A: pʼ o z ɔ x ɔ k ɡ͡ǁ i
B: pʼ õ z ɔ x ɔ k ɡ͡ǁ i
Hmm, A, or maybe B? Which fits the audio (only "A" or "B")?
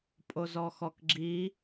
A